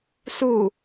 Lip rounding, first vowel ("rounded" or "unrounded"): rounded